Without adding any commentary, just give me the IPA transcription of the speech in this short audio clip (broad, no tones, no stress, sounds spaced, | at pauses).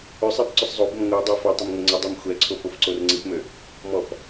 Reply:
ʏ sˤ ɛ b ǀ ʏ sˤ zˤ o b ʊ m ŋʷ œ dˤ ø f o tˤ ʏ m ŋʷ ɛ ŋ͡ǀ ʊ dˤ ø m xʷ ɛ ǀʰ o p o f ǀ o r ŋ͡ǀ i p m ø | m ɔ p